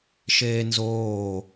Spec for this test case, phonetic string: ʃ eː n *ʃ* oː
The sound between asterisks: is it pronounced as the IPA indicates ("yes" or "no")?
no